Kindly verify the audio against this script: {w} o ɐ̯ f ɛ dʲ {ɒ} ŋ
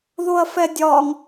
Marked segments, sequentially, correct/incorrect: incorrect: ð, correct

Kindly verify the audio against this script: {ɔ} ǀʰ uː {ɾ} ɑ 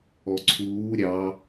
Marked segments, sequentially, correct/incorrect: correct, incorrect: ɾʲ

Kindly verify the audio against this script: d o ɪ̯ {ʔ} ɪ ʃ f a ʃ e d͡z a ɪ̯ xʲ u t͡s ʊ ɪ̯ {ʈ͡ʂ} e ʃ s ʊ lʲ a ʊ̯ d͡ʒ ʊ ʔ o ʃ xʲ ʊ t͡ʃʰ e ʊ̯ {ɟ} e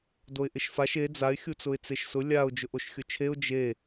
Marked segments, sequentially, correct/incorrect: correct, incorrect: t͡s, incorrect: d͡ʒ

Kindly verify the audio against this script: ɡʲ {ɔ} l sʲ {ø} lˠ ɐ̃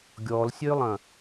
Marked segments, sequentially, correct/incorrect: correct, correct

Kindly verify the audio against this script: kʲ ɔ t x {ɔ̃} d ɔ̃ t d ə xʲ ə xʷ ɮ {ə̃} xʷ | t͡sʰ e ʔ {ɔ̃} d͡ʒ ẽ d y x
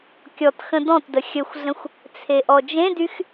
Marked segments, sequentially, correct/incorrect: incorrect: ə̃, correct, incorrect: ɔ

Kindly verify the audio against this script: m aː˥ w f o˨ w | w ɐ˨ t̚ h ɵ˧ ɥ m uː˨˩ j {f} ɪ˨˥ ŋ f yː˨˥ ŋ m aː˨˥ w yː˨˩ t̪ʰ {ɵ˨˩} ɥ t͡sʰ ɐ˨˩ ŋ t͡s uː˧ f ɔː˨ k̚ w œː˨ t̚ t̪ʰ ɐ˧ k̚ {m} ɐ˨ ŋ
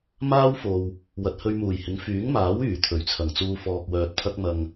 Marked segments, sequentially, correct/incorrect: incorrect: h, correct, correct

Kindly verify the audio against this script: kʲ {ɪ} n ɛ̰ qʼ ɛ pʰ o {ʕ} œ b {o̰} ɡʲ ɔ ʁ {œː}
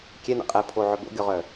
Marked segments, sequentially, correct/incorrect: incorrect: ɛ, correct, correct, incorrect: œ

